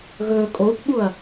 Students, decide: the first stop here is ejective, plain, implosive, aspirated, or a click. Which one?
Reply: ejective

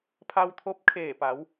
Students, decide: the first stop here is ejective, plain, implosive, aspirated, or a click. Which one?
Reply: aspirated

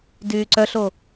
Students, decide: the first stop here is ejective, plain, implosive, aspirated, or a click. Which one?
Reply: plain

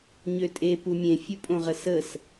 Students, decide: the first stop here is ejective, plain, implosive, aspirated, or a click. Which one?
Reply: ejective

